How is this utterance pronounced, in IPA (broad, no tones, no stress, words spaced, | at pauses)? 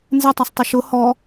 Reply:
nzɛ tˤasˤtˤʊʃʊ hɔ